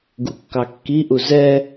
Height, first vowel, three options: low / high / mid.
high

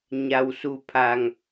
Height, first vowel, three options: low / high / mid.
low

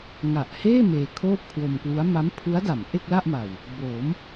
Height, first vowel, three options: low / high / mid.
low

